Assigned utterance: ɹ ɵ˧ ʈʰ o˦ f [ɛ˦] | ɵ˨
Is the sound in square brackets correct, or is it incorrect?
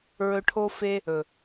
incorrect